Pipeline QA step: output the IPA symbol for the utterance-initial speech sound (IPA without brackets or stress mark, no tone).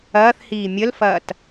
ɐː